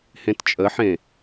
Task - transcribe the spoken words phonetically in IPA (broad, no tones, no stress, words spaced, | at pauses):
hẽtt͡ʃʼəħẽ